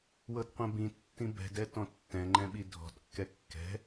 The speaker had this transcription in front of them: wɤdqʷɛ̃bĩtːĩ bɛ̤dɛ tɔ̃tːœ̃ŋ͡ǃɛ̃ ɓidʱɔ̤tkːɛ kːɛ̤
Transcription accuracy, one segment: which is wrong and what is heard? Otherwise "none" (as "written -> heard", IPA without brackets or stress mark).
œ̃ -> ɛ̃